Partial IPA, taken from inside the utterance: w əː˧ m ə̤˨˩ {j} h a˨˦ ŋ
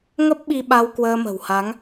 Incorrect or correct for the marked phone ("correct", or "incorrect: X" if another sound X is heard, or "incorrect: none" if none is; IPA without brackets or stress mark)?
incorrect: w